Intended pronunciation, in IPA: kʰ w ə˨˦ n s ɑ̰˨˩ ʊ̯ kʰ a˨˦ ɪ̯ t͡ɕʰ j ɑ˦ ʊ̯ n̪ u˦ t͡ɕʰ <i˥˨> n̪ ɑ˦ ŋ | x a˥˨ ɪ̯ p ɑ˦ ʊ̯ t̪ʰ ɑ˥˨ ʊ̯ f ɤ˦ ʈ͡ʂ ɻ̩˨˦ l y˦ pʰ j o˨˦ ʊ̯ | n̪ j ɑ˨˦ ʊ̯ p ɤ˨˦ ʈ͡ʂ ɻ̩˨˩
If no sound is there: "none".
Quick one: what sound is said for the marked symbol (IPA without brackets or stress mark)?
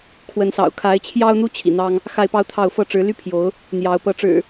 ḭ˨˩